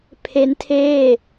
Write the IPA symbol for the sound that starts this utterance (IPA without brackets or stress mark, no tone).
pʰ